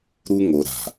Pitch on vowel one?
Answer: high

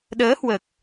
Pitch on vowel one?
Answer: rising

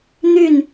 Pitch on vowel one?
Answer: falling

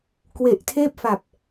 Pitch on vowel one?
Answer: low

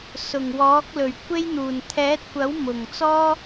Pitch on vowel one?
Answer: low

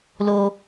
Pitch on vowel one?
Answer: high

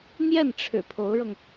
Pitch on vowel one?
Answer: falling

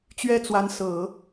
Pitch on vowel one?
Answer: high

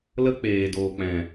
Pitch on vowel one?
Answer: high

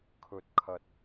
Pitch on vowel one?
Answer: low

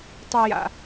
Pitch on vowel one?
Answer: low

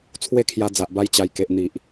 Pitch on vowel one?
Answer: falling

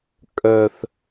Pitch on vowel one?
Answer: high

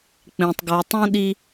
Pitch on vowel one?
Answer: low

